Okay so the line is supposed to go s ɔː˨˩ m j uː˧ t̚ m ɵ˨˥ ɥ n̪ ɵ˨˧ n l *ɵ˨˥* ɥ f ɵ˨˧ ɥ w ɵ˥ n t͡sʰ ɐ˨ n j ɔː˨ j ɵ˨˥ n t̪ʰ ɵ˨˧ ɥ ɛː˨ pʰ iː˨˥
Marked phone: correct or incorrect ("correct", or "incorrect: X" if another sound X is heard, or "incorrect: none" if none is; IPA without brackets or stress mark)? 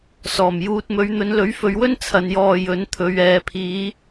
correct